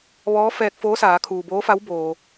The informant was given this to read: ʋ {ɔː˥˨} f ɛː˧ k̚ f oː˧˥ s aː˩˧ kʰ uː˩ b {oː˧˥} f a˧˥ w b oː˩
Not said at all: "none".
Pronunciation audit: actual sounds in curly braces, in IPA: ɔː˧˥, oː˧˥

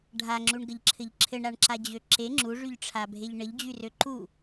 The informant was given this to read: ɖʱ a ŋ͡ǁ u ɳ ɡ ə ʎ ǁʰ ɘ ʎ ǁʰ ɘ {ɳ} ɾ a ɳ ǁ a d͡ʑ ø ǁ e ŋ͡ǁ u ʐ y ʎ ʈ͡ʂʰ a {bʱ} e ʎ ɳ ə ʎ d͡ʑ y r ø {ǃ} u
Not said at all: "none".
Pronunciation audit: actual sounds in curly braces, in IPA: ɳ, bʱ, ǃ

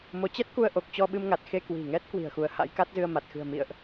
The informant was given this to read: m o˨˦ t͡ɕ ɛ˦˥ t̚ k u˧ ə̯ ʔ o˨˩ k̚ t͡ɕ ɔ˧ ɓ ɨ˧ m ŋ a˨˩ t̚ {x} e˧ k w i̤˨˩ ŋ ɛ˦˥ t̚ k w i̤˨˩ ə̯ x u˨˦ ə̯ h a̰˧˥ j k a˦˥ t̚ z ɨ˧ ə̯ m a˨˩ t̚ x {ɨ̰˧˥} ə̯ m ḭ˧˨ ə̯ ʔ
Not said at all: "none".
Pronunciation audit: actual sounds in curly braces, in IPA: x, ɨ̤˨˩

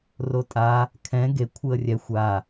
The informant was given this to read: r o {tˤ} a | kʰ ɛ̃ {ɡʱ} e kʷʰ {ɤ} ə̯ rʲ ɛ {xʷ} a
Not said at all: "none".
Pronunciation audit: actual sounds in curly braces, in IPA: tʼ, ɡ, ɯ, xʷ

